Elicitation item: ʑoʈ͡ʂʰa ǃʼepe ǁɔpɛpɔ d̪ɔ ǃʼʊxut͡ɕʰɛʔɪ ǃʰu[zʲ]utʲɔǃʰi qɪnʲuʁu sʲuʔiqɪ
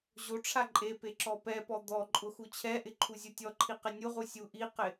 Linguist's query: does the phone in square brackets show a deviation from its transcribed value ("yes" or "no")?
no